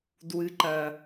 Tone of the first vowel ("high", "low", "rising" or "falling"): low